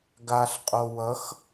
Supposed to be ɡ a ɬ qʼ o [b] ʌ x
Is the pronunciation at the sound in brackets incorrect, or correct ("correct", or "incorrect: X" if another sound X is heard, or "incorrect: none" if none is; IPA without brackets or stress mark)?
incorrect: w